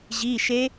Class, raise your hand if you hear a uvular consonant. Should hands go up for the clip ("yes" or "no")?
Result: no